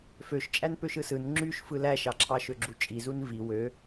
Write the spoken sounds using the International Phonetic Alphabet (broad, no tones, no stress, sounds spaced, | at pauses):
f ø ʃ t͡ʃʼ æ n p ø ʃ ɯ s ɯ n ŋ͡ǁ y ʃ f ɯ l æ ʃ ɑ ǁʰ ɑ ʃ ø ɡ͡ǁ u t͡ʃʼ i z u n v i w ø